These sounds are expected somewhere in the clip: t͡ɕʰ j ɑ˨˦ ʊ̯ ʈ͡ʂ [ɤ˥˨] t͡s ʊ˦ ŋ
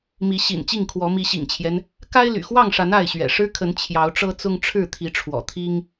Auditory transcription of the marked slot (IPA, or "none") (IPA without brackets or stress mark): ɤ˦